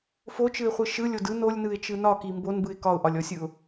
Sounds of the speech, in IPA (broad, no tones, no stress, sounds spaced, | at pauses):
f o t͡ʃ ɯ ɪ̯ χʷ ɯ ʃ ɯ lʲ o d ɯ n o lʲ n ɯ ɪ̯ t͡ʃ ɯ n ɒ k i m b o n b ɯ ɪ̯ k ɒ ʊ̯ ʔ ɒ lʲ ɔ sʲ ɯ ʊ̯